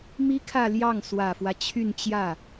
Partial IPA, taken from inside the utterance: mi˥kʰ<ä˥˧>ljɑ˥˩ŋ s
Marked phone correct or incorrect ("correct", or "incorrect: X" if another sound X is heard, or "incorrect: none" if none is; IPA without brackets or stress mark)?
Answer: correct